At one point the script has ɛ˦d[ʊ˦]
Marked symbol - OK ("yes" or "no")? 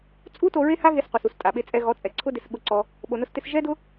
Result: yes